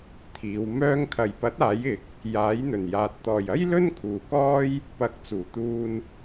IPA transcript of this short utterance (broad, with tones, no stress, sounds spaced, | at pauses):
t̪ʰ iː˨˧ w m œː˧ ŋ kʰ ɐ˨ j p ɐ˨˥ t̚ aː˨˥ j ɪ˨˥ k̚ | j aː˨˥ j n̪ ɵ˨˩ n j aː˨ t̚ t̪ ɔː˨ j ɐ˥ j l ɵ˥ n kʰ uː˨ k ɔː˥ j | p ɐ˨˥ k̚ t͡s uː˨˩ t̪ uː˧ n